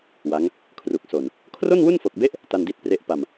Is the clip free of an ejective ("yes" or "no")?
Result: yes